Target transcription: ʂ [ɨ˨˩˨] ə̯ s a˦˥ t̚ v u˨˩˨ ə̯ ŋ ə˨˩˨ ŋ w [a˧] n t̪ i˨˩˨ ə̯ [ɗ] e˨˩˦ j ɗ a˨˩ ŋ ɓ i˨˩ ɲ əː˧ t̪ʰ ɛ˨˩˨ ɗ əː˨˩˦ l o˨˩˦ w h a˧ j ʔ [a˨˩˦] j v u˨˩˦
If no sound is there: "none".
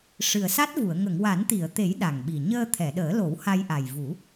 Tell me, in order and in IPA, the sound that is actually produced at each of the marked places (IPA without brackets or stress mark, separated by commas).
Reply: ɨ˨˩, a˨˩˦, t̪, a˨˩